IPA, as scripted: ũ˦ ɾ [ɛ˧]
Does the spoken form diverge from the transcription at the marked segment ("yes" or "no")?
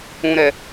no